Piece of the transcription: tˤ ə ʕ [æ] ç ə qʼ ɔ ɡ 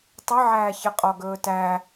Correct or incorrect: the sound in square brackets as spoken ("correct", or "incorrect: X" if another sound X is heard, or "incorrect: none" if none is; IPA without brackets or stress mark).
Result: incorrect: æː